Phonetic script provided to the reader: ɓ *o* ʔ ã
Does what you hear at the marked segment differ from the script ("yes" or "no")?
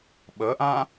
yes